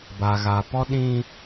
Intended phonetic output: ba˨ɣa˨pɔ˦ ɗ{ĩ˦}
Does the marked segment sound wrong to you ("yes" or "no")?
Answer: no